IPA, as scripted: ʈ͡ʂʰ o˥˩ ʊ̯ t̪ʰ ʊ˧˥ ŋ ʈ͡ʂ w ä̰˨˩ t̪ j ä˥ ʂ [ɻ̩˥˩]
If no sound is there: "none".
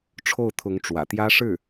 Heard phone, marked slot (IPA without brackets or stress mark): ɻ̩˥˩